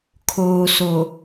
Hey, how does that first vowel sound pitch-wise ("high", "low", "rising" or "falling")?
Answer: low